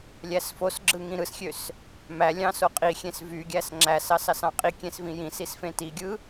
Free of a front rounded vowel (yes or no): no